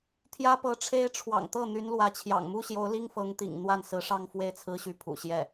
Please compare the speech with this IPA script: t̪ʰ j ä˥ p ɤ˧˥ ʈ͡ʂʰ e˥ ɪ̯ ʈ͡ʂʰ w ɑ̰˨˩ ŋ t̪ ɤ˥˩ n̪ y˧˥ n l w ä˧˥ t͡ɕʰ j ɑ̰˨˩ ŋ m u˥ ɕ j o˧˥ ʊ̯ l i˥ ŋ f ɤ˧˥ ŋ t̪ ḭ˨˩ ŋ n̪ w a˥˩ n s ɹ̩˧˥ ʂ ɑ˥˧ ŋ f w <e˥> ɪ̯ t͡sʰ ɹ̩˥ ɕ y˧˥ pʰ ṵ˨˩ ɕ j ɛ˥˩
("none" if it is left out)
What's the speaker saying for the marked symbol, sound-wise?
e˥˩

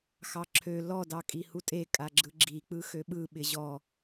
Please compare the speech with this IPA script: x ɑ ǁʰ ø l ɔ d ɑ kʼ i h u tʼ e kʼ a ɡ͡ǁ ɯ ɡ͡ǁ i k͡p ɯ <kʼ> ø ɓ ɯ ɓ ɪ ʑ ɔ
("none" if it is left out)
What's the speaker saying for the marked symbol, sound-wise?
x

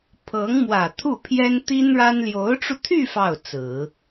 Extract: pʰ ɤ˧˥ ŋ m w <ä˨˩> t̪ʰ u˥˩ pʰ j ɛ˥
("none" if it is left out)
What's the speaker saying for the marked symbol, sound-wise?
ä˨˩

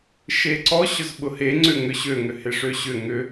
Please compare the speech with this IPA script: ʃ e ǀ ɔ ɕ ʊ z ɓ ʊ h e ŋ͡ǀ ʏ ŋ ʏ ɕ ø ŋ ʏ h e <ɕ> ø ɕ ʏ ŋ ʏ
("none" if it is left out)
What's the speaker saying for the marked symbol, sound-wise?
ʂ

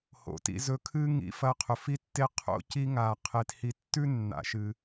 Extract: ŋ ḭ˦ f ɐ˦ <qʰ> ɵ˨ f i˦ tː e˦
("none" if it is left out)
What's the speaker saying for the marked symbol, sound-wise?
qʰ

